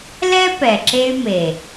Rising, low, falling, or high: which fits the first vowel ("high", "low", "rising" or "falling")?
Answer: high